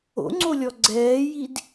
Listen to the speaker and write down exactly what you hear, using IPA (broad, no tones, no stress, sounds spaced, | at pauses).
o̰ ŋ͡ǀ o lʲ ɔ ɡ͡ǀ ɛː j i d